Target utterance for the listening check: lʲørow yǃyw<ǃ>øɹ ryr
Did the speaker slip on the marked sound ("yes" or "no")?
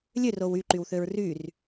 yes